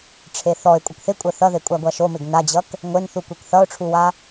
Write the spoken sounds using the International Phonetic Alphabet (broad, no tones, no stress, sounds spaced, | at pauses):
ʈ͡ʂʰ e θ ɔ ɪ̯ kʷʼ ʌ k θ ɪ kʷʼ ɜ θ ʌ ð e kʷʼ a ɡʷ a ʃ o m ɪ ɡ n a d͡ʑ ʌ k | ŋʷ e n θ u kʷ e k θ ʌ ʊ̯ ʈ͡ʂʰ u w a